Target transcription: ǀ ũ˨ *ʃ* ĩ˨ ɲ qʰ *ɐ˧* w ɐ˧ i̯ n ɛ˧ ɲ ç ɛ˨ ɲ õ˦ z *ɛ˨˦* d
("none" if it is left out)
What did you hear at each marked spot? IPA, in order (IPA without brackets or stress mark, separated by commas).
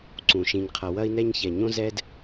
ʃ, ɐ˨, ɛ˦